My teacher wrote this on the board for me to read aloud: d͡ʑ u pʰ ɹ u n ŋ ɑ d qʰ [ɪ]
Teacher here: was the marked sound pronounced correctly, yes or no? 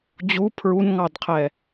no